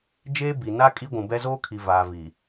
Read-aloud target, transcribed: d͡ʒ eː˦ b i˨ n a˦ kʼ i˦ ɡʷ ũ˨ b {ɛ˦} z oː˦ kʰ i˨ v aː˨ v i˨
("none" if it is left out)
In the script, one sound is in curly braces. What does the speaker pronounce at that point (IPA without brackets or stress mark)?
ɛ˦